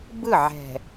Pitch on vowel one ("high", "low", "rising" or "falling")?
falling